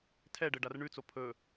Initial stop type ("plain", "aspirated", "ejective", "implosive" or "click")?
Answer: aspirated